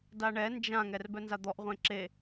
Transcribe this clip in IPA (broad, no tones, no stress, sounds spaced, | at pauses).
d a ɳ ɛ n d͡ʒ ã ŋ ɛ r b œ n z a d̪ ɔ ʔ ʁʷ ẽ ǁ e